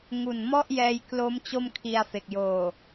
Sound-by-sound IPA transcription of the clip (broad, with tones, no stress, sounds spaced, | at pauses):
ŋ u˨˩ n m ɔ˥˩ ʔ j ɛː˧ j k l o˦˥ m t͡ɕ o˥˩ m kʰ i˧ a̯ f e˨˩ k̚ j oː˨˩